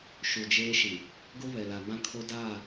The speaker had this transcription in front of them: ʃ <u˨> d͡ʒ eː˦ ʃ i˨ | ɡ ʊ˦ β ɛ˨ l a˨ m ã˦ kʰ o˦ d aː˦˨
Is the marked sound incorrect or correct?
correct